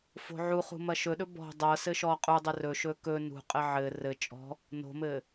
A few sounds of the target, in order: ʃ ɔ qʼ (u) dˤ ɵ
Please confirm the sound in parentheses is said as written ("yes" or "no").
yes